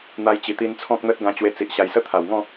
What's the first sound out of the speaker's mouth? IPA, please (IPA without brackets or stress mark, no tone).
n̪